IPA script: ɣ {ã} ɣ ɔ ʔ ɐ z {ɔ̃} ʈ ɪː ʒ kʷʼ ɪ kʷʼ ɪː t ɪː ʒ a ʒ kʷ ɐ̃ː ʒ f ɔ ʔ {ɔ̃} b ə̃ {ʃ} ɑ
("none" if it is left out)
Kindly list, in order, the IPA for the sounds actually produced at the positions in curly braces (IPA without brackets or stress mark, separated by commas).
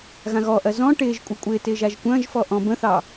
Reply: ã, ɔ̃, ɔ̃, θ